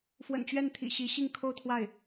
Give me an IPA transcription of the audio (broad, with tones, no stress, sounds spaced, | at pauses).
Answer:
f w ə̰˨˩ n t͡ɕ ɥ ɛ˥˩ n t̪ʰ ḭ˨˩ ɕ i˧˥ ɕ i˥˧ ŋ kʰ o˥˧ ʊ̯ t̪ʰ w a˥˩ ɪ̯